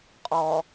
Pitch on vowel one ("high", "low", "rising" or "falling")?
low